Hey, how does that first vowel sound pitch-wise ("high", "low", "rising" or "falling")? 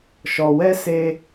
low